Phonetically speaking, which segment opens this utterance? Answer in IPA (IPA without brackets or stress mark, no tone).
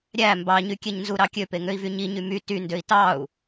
ɾʲ